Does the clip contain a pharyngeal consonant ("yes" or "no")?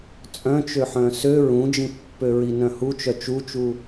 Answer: yes